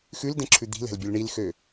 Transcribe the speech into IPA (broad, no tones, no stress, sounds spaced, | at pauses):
x ʉ l d ɛ̃ ǁʰ ʉ d̪ i̤ l ɛ̤ l bʲ ø l ɳ i l x ø